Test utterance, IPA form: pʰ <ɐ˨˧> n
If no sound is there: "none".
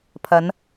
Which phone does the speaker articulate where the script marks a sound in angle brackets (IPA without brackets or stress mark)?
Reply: ɐ˨˧